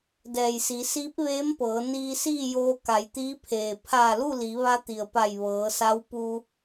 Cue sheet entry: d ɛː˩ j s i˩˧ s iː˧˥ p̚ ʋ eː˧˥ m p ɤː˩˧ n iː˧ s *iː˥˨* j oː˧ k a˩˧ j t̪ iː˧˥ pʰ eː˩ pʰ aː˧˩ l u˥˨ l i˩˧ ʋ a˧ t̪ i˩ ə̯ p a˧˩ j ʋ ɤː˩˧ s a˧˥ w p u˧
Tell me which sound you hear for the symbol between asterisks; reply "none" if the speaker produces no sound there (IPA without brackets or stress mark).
iː˥˨